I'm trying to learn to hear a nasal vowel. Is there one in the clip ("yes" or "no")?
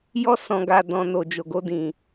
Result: yes